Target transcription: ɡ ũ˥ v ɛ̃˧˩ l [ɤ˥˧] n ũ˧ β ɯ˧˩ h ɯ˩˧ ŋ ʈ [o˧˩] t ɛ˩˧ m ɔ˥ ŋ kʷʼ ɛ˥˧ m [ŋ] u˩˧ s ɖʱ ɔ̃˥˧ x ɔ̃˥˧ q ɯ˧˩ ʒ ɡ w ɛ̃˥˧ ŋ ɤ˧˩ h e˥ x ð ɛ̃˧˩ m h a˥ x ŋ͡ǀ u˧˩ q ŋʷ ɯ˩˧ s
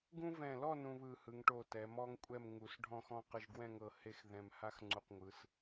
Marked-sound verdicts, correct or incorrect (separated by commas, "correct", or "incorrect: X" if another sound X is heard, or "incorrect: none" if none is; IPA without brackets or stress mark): incorrect: ɔ˥˧, correct, correct